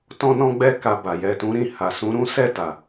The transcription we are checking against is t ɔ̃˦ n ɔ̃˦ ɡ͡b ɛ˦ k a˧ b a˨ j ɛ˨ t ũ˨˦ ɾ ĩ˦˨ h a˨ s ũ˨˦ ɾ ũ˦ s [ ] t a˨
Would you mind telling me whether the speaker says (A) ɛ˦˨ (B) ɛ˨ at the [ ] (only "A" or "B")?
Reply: A